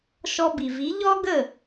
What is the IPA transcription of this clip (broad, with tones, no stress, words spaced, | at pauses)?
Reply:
ʃɔ˧bi˩vi˩˥ ʎɔ˥ɡə˥˩